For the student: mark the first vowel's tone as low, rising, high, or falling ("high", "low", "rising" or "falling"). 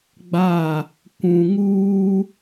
falling